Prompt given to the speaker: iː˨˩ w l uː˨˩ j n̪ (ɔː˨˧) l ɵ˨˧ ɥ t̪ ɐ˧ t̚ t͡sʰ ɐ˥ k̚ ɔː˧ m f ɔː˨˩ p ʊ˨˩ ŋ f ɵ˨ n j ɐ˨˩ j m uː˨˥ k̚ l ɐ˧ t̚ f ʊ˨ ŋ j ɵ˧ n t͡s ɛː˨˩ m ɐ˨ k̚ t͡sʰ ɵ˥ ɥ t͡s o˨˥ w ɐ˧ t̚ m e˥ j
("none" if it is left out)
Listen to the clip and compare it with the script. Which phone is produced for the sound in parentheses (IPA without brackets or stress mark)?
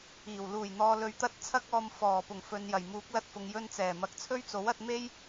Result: ɔː˨